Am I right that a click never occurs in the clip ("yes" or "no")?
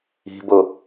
yes